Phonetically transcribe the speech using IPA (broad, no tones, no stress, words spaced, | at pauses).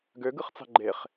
ɡøɡɯχt͡sɑ̤ ɡ͡ǃeχ